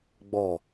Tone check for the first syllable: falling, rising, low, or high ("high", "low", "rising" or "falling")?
low